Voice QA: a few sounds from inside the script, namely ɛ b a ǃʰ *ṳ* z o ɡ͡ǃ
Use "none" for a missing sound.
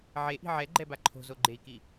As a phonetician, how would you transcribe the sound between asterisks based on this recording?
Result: o̤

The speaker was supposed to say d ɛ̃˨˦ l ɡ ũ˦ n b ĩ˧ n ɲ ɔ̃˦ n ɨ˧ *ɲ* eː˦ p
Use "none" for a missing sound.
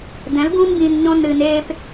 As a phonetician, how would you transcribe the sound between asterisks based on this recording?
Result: n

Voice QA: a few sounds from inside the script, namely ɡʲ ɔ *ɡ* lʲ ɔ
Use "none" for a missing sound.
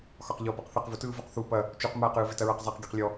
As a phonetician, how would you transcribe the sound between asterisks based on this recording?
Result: q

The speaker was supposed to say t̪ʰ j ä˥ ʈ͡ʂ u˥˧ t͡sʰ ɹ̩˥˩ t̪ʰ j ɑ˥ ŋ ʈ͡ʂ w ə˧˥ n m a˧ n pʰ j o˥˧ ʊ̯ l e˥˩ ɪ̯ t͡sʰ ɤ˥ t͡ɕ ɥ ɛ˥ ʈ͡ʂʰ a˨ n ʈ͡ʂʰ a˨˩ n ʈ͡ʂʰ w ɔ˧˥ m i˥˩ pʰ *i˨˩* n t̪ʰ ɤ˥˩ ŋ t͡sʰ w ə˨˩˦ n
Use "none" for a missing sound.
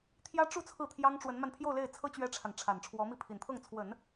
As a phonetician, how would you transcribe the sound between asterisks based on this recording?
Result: i˨˩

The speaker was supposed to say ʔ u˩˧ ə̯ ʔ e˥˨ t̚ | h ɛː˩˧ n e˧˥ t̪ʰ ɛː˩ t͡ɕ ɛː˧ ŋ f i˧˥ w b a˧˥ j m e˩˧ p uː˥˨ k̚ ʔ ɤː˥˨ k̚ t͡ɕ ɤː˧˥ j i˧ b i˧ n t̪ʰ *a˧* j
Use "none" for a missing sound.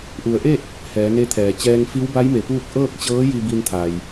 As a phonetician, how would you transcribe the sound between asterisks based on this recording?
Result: a˩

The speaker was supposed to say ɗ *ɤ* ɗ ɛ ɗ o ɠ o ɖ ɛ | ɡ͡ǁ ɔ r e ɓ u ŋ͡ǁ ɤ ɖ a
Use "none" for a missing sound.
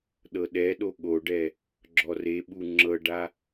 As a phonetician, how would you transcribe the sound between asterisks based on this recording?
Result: ɤ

